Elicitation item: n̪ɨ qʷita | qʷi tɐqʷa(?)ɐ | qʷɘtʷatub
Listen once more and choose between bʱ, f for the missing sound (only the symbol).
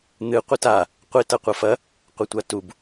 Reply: f